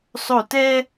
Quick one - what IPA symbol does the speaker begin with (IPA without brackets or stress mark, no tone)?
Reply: sˤ